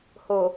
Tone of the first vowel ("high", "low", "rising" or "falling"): low